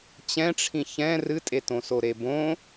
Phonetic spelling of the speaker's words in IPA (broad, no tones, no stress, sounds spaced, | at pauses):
t͡ɕ ɛ̃ ʈ͡ʂʰ ĩ ç ɛ̃ r ɨ tʼ e t õ s o ɾ e b õ